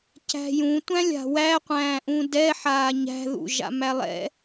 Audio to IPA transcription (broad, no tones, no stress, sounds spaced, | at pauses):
c æ̤ j ũ tʷ æ̃ lʲ a̤ w æ qʷ æ̃ː ʔ ũ d ɛ ħ aː ɲ æ̤ ð ṵ ʒ a̰ m æ lˠ ɛ̰